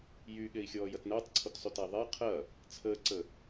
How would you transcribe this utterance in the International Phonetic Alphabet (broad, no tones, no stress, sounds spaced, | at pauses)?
j y ɠ e i̯ xʲ ɔː j ɐ t n əː tˤ ǀʰ o t sˤ y t æ ðˤ e qʰ ɐ | t͡sʰ əː ǀ ə